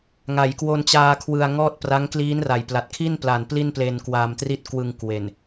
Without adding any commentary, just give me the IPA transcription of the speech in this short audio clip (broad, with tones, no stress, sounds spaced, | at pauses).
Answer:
ŋ a˩˦ j k w o˧ n t͡ɕ aː˧ kʰ w ɯ˧ a̯ ŋ ɔː˥˩ t̚ p r a˦˥ ŋ k l iː˦˥ n r a˨˩ j p l a˨˩ t̚ kʰ i˥˩ n p l a˨˩ n p l i˥˩ n p l e˧ n k w a˧ m t r i˥˩ t̚ k w ɯ˧ ŋ k w e˨˩ n